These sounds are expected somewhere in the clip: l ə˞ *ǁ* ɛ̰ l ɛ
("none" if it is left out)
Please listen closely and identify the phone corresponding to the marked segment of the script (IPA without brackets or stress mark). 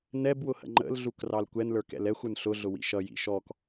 k